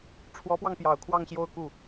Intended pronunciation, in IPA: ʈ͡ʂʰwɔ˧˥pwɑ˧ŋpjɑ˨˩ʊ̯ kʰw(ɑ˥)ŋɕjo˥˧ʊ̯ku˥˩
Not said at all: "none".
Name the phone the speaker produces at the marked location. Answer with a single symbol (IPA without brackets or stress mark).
ɑ˥˧